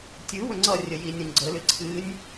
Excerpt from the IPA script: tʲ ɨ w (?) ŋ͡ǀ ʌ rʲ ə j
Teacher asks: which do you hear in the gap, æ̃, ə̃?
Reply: ə̃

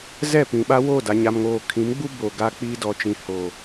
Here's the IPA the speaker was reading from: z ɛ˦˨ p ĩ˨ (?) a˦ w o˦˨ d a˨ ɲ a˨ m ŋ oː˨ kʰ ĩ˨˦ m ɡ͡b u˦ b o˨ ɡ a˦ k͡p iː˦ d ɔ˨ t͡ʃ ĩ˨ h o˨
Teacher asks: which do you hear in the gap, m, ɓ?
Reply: ɓ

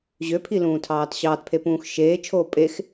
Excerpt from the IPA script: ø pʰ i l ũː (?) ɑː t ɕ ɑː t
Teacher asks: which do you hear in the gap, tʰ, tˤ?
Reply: tʰ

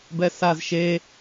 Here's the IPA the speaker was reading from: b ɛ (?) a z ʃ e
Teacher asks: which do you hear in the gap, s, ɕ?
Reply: s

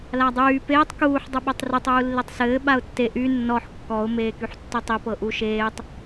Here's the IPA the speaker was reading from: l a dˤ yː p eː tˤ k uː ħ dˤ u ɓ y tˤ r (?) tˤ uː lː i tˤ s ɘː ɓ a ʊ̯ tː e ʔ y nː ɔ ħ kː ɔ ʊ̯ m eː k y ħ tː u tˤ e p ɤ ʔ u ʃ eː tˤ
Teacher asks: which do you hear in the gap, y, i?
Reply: y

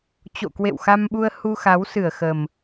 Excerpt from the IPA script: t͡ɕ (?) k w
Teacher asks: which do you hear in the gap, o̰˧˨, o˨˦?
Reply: o̰˧˨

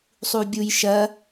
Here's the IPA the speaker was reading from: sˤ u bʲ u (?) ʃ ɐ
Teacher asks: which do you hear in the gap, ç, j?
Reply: j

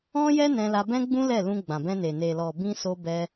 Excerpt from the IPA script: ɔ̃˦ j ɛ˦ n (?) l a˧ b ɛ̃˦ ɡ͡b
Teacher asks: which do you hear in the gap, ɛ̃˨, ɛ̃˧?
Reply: ɛ̃˧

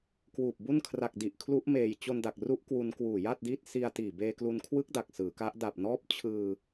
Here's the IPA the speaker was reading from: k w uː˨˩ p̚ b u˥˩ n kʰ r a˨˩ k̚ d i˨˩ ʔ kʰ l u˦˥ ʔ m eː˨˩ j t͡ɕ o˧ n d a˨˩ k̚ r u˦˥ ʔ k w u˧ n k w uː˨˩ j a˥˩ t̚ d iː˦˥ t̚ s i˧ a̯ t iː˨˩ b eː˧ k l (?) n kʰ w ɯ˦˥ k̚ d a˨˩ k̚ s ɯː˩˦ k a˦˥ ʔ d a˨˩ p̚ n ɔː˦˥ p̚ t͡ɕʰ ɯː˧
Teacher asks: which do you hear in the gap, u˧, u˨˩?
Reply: u˧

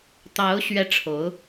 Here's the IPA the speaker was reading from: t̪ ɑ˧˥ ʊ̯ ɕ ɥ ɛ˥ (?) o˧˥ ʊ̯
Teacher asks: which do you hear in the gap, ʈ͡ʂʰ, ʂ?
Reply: ʈ͡ʂʰ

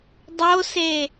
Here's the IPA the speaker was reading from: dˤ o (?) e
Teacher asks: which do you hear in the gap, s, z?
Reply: s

